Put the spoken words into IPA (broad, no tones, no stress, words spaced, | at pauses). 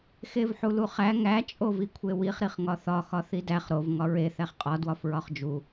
xevħuluχæ ŋæ t͡ʃʼovikʷʰewiχ ɾiχŋɒθɒ xɒθidæχ ɾov ŋɒɹe θæχqʼɒ dwɒfɹɒχd͡ʒu